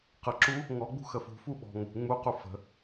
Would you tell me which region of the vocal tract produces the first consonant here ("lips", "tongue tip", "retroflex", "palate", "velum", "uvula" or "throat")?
uvula